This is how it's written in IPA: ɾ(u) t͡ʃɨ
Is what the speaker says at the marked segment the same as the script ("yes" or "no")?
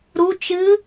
yes